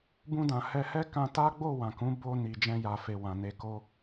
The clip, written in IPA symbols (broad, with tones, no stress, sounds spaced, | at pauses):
b ũ˧ d ã˨ h ɛ˧ h ɛ˦ k ã˧ t a˦ ɡ͡b o˦˨ w ã˨ k ũ˨˦ b o˧ n i˨ d͡ʒ ɛ̃˧ j a˨ f e˨ w ã˨ n e˧ k o˦